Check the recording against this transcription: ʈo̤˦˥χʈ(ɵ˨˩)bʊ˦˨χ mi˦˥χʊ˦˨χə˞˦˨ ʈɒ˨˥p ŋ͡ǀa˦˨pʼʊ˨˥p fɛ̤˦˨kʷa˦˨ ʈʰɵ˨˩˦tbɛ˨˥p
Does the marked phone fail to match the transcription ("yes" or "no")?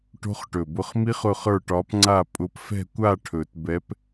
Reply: no